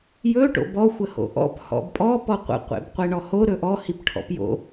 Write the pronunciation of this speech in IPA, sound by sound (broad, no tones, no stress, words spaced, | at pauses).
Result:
jɵ ʈo̰bɔ xʷəho̰ʔɔ̰p hɔ̰bpʼɔ pɔqʷə̰ qʷḛbqʷeɳɔho ɾɵʔɔ hipʈʰɔ̰pjo̰